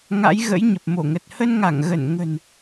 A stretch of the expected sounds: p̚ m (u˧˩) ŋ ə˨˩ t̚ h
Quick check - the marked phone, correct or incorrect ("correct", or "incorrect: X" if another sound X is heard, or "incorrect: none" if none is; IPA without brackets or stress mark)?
incorrect: o˧˩